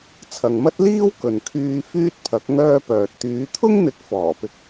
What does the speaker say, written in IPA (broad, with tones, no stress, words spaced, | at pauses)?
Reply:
t͡sʰɐ˨ŋmɐ˥t̚liː˥w kɵ˨n kʰyː˧ fyː˥t̚pʰɐ˨˥k̚ ŋœː˥pœː˨t̚ t̪yː˨˧t̪ʰʊ˥ŋn̪ɪ˨˥k̚ fɔː˨˩pɪ˧k̚